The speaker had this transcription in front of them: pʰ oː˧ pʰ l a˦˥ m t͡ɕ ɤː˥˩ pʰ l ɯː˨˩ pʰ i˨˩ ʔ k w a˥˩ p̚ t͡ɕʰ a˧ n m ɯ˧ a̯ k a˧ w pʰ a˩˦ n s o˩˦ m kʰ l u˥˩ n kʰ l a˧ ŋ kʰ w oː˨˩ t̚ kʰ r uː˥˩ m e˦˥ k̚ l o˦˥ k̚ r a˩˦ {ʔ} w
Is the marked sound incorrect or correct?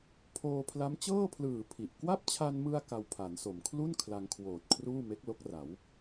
incorrect